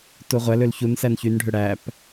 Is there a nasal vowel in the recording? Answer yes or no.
no